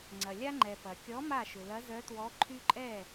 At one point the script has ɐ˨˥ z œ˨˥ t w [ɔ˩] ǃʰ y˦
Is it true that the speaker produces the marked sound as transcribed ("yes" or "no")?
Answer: no